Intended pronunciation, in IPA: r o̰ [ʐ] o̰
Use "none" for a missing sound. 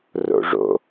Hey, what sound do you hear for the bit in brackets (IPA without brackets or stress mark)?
ʐ